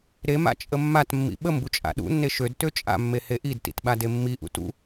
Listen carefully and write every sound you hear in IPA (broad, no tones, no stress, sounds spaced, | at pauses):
ɾ e m a̰ t͡ʃʼ ə mː a t mː ḭ ɓ ə m b u t͡ʃʼ a̰ ɗ ṵ nː e ʃ ø d t ø t͡ʃʼ a̰ mː e h e ʔ i d t ḭ t ɓ a d e mː i ʔ ṵ t ṵ